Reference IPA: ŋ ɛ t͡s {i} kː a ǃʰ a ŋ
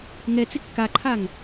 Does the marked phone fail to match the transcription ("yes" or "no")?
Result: yes